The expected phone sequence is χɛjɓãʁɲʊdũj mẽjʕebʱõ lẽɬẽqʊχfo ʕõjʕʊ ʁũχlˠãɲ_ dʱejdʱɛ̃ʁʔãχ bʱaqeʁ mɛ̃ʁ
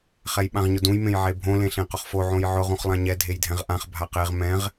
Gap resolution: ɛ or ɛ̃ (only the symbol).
ɛ